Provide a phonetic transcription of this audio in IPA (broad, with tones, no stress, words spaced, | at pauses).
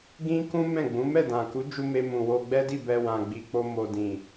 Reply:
ɡĩ˦kũ˦mɛ̃˦˨ɡ͡bũ˨˦ mɛ˦˨dã˨ku˨˦d͡ʒu˧ me˧mũ˨wo˧ ɡ͡bɛ˦di˦˨bɛ˧ wã˨ɡ͡bi˨k͡po˧ mo˨dĩ˨